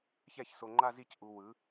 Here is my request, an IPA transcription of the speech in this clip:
ç ɛ˥˩ ç s o˨ ŋ͡ǃ a˥˧ z i˥˩ c ʔ u˨ w ɯ˩˥

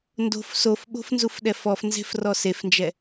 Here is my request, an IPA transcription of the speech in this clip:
n d o̤ f s o f ɓ o̤ f n z u f ɗ ɛ f ɔ f n z e̤ f r ɔ s e f n d͡ʒ ɛ

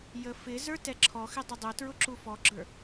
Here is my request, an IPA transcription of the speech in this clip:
j ə f ɪ z ə˞ t ɛ ǁʰ ɔ x ɪ dˤ ʊ dˤ ʊ t ɹ ʊ ǁ u f ɔ ɡ͡ǁ ə˞

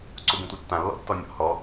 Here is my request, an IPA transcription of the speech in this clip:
ǀ u b ũ tʷ œ tː ã lː ɔ̰ tː ɔ nʲ ɔ̰ h ɔ

